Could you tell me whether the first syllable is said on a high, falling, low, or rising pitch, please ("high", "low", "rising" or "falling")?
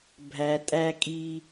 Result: low